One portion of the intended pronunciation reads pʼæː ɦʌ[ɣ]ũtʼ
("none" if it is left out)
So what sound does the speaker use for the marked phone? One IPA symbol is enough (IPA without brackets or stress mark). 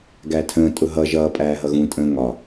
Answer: ɣ